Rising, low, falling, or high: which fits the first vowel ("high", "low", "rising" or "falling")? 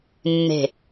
low